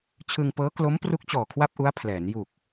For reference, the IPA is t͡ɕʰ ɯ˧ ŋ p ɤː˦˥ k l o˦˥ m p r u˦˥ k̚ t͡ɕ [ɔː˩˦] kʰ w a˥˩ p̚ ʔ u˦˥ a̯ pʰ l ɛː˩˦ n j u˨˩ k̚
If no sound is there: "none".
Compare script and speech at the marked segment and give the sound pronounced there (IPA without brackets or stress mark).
ɔː˨˩